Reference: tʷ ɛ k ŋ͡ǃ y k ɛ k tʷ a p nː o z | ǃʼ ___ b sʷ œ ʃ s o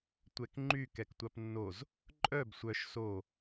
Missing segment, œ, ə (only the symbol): œ